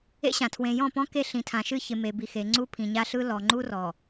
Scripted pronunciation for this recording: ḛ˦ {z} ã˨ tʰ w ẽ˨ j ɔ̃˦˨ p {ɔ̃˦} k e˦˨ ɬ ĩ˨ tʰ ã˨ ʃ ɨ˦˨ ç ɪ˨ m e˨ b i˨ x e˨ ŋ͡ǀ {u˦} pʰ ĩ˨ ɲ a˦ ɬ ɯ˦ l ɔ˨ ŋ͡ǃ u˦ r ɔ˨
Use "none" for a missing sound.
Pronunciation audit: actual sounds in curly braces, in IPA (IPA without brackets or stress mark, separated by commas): ɕ, ɔ̃˦, u˦